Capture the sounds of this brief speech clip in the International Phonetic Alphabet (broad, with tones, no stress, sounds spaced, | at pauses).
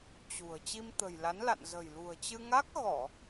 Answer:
t͡ɕ ṳ˨˩ ə̯ t͡ɕ i˧ m t̪ ə̤˨˩ j l a˨˦ n l a̰˧˨ n z ə̤˨˩ j l ṳ˨˩ ə̯ t͡ɕ ɨ˧ ŋ a˦˥ k̚ ɣ ɔ˧˩˨